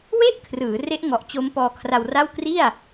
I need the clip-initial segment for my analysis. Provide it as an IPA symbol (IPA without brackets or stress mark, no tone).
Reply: w